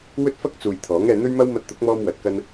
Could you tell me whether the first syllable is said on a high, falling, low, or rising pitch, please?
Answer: high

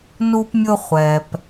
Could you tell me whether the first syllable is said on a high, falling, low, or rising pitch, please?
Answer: high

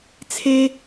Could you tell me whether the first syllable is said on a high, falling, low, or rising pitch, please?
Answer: high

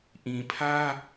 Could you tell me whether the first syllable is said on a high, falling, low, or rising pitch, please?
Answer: low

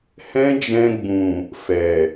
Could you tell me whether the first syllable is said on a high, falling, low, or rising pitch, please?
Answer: high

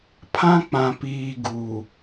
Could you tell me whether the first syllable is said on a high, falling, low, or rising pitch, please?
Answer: high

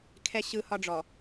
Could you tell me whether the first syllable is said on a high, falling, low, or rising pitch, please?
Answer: high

